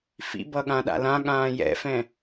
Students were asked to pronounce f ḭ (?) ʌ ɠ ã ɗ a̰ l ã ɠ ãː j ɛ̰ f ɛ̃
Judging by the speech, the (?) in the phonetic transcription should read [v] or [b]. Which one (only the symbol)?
b